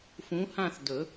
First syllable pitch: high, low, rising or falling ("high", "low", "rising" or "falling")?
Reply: rising